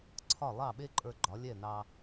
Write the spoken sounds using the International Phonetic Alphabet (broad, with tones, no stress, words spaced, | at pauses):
ǀʰɒ˥˩lˠɑ˥˩ɓe˥ǃʼə˞˧ ɡ͡ǃɒ˩˥lʲɛ˥˩nɑ˧